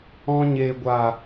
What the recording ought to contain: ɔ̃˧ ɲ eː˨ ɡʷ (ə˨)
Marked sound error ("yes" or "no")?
yes